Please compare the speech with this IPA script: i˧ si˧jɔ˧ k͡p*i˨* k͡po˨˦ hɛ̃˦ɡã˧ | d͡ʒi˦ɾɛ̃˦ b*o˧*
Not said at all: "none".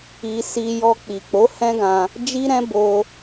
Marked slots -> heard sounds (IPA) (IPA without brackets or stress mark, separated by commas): i˨, o˧